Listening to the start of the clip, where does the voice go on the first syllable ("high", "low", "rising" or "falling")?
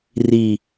low